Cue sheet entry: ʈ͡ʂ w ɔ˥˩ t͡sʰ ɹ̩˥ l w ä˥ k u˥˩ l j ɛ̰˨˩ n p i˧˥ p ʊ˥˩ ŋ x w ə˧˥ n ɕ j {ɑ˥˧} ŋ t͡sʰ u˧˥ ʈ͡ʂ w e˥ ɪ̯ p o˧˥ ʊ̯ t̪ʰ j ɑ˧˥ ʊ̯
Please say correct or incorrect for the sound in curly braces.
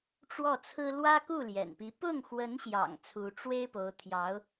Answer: incorrect